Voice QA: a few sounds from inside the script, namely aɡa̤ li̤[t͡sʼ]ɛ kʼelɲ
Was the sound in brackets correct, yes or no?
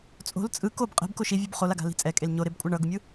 yes